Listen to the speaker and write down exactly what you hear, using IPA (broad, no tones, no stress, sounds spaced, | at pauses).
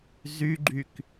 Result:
z y ɡ͡ǃ y k